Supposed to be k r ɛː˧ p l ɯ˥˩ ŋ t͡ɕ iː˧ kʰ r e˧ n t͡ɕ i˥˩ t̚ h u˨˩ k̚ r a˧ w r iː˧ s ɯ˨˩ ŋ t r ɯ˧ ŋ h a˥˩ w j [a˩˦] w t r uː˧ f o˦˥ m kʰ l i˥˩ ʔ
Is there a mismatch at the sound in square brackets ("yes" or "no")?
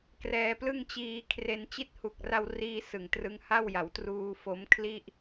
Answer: no